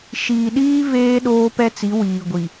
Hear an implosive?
yes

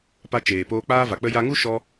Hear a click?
no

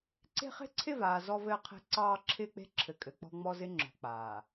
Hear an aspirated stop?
yes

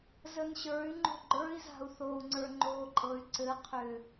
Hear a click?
yes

